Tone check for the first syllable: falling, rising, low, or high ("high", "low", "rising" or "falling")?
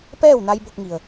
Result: falling